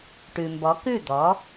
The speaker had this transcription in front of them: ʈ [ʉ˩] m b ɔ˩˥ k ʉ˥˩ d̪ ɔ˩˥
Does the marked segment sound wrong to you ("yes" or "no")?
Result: no